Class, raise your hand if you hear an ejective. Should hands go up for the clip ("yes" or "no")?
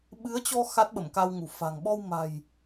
no